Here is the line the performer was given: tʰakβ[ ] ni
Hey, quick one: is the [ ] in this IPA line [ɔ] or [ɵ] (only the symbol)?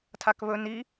ɵ